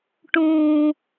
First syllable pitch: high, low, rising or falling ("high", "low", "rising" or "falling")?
low